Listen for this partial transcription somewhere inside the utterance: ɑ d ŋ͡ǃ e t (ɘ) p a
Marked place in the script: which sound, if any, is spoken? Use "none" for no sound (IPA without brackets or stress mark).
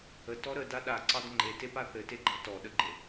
e